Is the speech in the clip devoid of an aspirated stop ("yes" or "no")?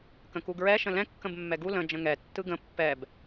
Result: yes